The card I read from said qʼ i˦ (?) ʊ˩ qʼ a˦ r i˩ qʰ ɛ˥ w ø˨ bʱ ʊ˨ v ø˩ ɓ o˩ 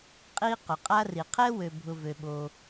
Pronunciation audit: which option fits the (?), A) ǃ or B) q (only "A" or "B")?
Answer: B